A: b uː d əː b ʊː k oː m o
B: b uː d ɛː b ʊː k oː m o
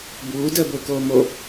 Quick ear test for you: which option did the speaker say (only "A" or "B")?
A